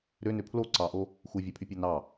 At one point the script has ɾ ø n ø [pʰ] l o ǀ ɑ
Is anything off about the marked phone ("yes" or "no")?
no